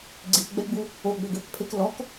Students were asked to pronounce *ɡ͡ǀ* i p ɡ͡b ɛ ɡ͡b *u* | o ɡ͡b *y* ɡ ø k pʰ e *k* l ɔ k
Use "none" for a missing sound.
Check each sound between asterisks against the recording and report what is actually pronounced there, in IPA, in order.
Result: ɡ͡ǀ, u, ø, k

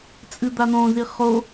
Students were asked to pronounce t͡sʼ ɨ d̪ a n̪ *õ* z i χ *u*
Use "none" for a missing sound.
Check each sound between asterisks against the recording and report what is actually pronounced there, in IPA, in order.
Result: õ, o

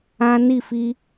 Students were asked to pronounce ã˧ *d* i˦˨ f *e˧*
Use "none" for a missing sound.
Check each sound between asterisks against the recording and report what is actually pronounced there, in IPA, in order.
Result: n, i˧

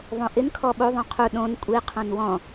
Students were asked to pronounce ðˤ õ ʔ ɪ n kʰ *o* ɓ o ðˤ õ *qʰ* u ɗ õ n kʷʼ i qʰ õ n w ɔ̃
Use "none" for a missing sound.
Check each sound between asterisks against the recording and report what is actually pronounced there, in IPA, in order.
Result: ɔ, qʰ

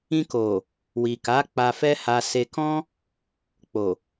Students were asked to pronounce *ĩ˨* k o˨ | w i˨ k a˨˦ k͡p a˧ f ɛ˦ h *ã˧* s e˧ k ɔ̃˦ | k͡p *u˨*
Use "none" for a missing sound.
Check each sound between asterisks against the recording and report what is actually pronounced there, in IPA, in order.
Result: ĩ˧, a˧, o˨

